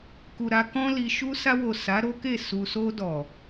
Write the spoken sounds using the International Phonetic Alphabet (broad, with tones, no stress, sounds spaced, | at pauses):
k u˨ ɾ a˧ k ɔ̃˧ l i˨ ʃ u˧ s a˧ w o˨ s a˨˦ ɾ o˦ k e˦˨ s u˨ s o˧ d ɔ˨